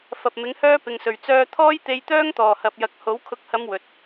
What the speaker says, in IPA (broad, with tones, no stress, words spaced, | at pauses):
fɐ˨p̚ mɪ˨˥ŋhœː˥ pɪ˨ŋsɵ˨˩ɥ t͡sœː˧t̪ʰɔː˥jt̪e˧jt̪œː˥ŋ t̪ɔː˨˩hɐ˨p̚jɐ˨k̚ho˨˥w kʰʊ˨k̚hɐ˨˧m wɵ˨t̚